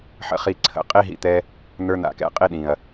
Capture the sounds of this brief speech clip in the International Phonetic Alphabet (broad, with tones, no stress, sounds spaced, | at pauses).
ħ ə̰˧ χ i˧ ǀʰ ə̰˨ qʼ i˦ ɦ ḭ˧ t̪ ɛ˧ | n̪ ə˞˧ n̪ a̰˨ k ɛ̰˧ qʼ i˦ ɗ ĩ˨ ɐ̯